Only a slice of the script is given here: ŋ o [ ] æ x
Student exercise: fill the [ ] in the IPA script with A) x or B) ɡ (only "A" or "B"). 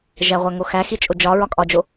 A